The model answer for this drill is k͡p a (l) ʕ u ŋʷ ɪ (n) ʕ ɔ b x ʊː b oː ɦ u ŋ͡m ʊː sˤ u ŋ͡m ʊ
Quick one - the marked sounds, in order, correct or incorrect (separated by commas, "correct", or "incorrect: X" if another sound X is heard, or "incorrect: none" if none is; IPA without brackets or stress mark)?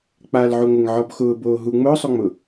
correct, incorrect: ŋ